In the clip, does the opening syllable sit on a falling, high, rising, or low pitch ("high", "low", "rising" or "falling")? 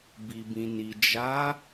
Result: low